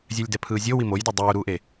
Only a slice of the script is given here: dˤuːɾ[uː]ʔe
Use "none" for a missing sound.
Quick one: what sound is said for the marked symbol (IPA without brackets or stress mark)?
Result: uː